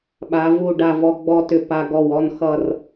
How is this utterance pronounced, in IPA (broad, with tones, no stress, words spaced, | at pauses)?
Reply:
ɓa˩˧ vu˧˩ɖa˧˩vɔ˧ ɡ͡bɔ˧tʏ˧˩ pa˧ɡɔ˧˩w ɔ˥˧nxʌ˥˧r